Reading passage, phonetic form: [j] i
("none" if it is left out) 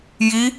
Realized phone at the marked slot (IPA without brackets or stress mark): j